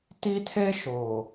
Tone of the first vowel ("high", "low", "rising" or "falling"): high